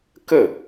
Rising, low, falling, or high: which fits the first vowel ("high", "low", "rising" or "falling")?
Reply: falling